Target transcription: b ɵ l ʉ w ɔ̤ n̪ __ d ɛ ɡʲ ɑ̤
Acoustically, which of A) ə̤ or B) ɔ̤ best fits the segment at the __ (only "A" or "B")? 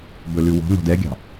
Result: B